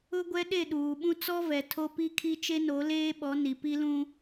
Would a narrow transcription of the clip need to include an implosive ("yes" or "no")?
yes